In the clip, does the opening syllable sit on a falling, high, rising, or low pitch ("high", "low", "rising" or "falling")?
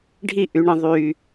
falling